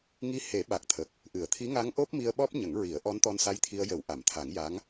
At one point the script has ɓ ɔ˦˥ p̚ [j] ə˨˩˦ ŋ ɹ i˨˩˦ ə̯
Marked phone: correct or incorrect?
incorrect